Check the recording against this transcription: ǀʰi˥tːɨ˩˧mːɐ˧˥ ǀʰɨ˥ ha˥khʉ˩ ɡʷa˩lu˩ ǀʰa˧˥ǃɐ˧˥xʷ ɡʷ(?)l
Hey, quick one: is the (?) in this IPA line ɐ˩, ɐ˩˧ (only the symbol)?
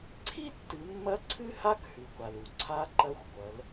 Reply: ɐ˩˧